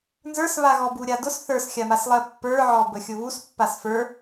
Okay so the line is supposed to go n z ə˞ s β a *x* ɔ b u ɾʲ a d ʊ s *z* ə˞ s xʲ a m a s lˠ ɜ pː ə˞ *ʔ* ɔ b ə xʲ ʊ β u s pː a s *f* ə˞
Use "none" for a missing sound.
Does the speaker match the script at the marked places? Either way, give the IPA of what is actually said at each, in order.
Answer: ɣ, θ, ʕ, f

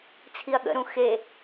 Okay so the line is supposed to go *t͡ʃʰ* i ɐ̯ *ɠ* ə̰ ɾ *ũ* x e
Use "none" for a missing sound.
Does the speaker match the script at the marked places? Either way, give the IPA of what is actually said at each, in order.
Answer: t͡sʰ, ɠ, ũ

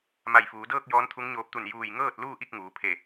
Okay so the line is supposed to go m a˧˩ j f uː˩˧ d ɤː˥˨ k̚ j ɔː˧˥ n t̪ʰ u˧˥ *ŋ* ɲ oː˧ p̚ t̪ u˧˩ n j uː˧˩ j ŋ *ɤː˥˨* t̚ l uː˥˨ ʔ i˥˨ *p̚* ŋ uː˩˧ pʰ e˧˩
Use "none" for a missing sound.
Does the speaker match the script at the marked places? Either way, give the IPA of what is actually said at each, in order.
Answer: ŋ, ɤː˥˨, k̚

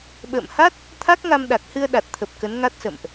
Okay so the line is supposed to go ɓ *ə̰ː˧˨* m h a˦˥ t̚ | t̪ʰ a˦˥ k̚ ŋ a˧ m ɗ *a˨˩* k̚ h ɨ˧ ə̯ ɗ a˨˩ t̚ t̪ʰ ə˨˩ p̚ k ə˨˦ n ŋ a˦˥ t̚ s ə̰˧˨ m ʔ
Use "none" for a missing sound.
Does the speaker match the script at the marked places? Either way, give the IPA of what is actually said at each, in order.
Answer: ə̰ː˧˨, a˨˩

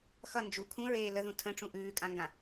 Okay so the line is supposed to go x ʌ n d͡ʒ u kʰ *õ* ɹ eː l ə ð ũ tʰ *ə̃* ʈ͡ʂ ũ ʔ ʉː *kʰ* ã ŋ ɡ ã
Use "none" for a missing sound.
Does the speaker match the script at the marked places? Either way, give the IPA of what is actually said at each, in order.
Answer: ũ, ə̃, kʼ

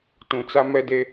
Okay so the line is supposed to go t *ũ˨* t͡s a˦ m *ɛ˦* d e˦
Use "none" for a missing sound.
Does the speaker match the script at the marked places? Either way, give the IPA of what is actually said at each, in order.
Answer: ũ˨, ɛ˦

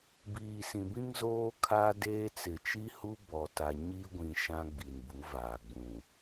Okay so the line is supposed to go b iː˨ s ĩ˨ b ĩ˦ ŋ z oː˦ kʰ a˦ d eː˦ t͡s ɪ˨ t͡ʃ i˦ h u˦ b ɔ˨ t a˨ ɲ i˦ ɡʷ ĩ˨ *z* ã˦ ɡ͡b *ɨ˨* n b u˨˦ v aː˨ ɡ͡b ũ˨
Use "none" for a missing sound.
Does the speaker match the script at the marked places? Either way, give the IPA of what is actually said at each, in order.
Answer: ʃ, i˨

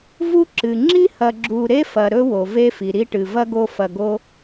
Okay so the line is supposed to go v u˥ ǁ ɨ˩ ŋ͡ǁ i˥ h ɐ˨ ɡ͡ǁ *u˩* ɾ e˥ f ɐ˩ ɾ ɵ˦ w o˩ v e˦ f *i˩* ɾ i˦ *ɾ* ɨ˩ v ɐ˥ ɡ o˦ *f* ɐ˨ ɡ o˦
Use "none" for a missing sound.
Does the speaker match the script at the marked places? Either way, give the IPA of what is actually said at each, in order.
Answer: u˨, i˩, ʈ, f

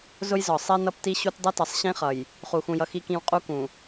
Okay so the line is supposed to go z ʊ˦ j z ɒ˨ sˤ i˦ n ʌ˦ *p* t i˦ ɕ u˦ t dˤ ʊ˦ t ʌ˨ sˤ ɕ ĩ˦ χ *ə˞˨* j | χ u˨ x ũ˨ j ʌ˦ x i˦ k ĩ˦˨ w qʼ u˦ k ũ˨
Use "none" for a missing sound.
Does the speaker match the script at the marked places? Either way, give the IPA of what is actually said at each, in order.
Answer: p, ʌ˨

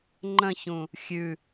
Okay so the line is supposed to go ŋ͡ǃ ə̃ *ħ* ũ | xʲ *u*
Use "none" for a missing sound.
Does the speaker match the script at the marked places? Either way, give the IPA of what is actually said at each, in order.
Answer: ç, ʉ

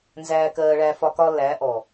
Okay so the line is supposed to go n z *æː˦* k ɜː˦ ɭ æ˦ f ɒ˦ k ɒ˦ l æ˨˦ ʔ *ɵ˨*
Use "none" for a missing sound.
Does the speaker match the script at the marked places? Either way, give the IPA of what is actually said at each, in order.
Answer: æː˦, ɔ˨

